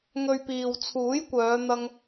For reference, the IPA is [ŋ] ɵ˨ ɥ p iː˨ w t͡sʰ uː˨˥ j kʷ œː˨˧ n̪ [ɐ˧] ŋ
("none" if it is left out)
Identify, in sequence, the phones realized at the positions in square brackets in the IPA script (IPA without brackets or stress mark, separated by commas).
ŋ, ɐ˧